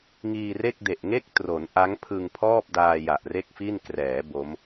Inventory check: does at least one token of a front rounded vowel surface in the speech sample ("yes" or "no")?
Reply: no